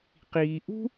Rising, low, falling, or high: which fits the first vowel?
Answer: low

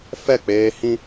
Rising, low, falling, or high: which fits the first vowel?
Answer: falling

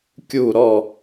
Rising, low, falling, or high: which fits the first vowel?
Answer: falling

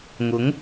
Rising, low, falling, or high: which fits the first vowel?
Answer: rising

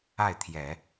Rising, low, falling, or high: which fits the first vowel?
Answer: falling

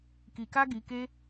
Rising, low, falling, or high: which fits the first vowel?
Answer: low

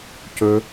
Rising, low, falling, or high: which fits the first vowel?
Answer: high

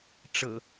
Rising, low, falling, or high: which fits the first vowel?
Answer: low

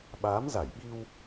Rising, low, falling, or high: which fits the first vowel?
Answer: rising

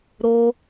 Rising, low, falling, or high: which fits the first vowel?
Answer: high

